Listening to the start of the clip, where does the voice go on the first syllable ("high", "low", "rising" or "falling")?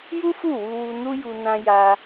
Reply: high